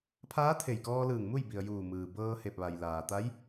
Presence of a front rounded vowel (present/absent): absent